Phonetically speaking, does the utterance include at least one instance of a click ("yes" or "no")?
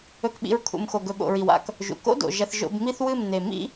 no